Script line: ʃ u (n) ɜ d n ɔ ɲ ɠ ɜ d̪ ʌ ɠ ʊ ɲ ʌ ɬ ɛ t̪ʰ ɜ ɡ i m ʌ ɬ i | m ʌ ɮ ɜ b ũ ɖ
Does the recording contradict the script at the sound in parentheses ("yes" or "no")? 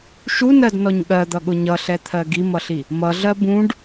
no